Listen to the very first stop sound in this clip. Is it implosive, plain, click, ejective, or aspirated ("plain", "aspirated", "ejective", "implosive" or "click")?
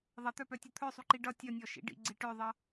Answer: plain